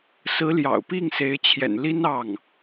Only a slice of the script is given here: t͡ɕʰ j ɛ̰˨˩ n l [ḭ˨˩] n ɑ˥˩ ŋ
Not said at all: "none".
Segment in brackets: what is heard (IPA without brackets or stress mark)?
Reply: i˥